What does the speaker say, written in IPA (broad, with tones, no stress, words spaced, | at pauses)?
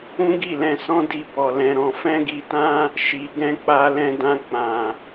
ũ˦ɡi˦˨lɛ̃˧sɔ̃˦ di˧ bɔ˧lɛ̃˧ɾɔ̃˧ fɛ̃˦ɡi˧tã˦ | ʃi˧ɡɛ̃˦ k͡pa˧lɛ̃˧dã˧ k͡pã˨